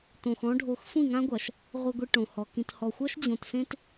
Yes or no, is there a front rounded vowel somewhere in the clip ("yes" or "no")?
no